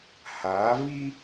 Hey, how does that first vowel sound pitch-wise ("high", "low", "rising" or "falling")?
rising